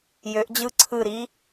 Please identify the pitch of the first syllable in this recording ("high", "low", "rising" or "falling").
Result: rising